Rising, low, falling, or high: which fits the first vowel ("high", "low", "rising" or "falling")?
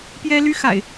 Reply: high